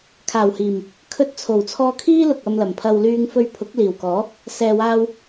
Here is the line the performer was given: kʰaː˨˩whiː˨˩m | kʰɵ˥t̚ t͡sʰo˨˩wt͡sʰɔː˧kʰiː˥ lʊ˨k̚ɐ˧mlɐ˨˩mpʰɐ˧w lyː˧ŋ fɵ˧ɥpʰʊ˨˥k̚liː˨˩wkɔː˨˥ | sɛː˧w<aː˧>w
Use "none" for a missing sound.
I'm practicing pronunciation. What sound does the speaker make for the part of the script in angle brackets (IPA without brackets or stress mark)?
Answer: aː˥